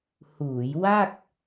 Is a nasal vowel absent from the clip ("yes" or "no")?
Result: yes